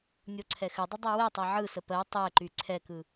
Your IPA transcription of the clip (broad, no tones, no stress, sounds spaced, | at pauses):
nʲ o ǀʰ ɛ x ɘ dˤ ə dˤ ɛ w ɛ tˤ ɛ ʕ ɯ s ə p ɜ tˤ ɛ ǃ y ǀʰ ɛ k ɯ